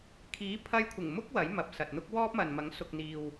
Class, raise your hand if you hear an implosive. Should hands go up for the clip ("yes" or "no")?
no